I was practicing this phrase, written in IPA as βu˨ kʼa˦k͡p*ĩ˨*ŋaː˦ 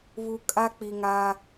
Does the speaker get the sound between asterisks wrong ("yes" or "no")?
yes